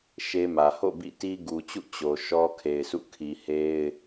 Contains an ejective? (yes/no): no